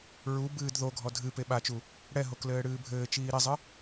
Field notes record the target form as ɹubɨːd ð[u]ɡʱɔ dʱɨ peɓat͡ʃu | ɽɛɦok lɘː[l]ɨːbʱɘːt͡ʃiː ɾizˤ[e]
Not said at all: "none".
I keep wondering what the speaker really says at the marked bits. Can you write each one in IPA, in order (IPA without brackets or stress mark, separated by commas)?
o, ɽ, ɨ